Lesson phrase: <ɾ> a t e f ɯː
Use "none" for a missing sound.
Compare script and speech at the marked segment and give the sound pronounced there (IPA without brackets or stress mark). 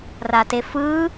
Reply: r